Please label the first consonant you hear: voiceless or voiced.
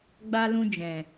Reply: voiced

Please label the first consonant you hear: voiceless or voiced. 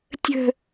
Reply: voiceless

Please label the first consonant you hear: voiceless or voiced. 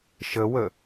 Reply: voiceless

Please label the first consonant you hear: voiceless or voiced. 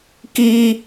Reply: voiceless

